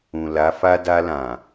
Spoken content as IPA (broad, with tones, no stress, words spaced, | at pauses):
ũ˨la˨˦fa˦ da˧lã˨